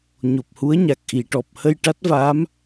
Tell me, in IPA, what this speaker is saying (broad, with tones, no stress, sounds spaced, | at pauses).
ɲ o˨˩ p̚ h u˧˥ ə̯ ɲ a˨˩ k̚ ʔ i˨˩˨ ʈ ɔ˨˩ p̚ h ə˧ j ʈ a˦˥ t̚ v aː˧˥ m